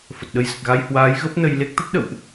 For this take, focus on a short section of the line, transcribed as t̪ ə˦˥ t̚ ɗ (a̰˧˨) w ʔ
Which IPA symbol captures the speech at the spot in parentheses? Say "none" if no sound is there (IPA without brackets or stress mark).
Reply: ə̰˧˨